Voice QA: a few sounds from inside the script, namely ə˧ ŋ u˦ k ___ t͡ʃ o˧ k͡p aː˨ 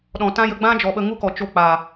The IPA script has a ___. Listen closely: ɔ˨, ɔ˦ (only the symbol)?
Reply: ɔ˨